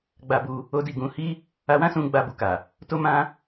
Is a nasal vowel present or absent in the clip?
present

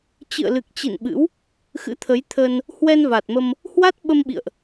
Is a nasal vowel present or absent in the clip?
absent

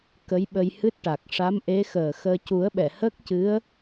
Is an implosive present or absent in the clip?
present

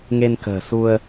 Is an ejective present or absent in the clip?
absent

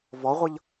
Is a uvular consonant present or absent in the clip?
present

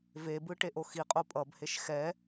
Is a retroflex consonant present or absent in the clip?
present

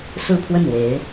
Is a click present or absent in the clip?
absent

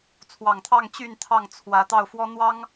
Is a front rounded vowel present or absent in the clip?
present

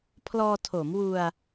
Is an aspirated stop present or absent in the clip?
present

